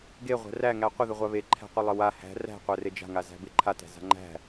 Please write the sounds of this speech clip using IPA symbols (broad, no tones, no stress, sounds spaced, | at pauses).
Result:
ɡ e ʁʷ æ̤ r æ ŋ æ qʷ ɪ ð ɪ ʁʷ a β e ǃʰ æ̤ qʷ ɪ lˠ ɪ w a h æ̤ r æ̤ qʷ æ r e d͡ʒ a̤ ŋ a z æ̤ b ɪ ǃʰ a t æ̤ z a̤ ŋ͡ǃ æ̤